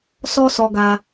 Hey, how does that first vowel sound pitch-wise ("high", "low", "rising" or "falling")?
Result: high